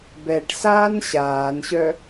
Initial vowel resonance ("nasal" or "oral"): oral